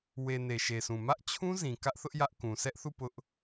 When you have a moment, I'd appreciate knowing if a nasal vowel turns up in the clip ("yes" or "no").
yes